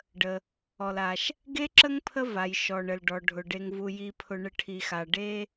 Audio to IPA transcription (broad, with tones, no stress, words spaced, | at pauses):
ɖə˩ | ɔ˩la˩ʃ | ɡe˥ǁə˥ŋpʰə˦ va˩jʃɔ˩ɳə˩lɖɔ˩ ɖʱʊ˩ɖe˨ŋvu˨ ji˨pʰʊ˨ ɳə˨ʈʰi˩xa˩ ɖe˦